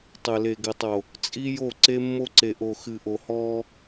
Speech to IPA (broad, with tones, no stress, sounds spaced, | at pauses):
tˤ ɘ˨ l e˨ ɡ ɘ˨ tˤ o˨ | t͡sʼ i˦ j o˦˨ ǀ e˦ mː o˦ ǀ e˨ ʔ o˨ x ɨ˨ ʔ o˨ h ɔː˦